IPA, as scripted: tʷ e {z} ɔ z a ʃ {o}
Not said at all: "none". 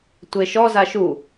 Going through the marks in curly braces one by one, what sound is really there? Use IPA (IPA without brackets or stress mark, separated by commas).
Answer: ʃ, u